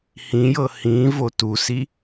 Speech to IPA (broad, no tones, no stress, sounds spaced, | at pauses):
h ĩ j ɤ h ĩ v o t u s i